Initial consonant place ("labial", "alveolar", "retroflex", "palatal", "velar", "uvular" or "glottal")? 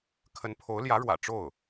velar